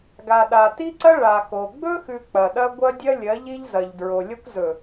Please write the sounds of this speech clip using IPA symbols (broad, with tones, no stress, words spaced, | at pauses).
ɡa˨ɗa˨ ti˦ǀɐ˦ ɭa˨ xo˨ ɡ͡bɵ˦xʉ˨ k͡pɐ˨ɗɐ˦ ɡʷɐ˦dʲɐ˦ lʲɐ˨˦ʎi˦ʎ zɐ˨ʎ dɹo˨lʲɐ˦kʷzɵ˨